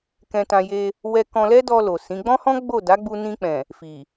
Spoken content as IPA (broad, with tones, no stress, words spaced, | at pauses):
kɛ̃˧tã˧ je˧ | wɛ˧kɔ̃˧lɛ˦dɔ˧ lo˨sĩ˨˦ ɡ͡bɔ̃˦hɔ̃˦ ɡ͡bo˦˨da˨˦ɡ͡bu˧ nĩ˧k͡pɛ̃˨ | fi˨